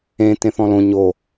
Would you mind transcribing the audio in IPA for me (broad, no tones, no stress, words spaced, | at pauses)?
ẽ tẽθɔ̃lõ ɲo